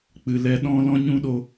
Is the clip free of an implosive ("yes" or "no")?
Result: no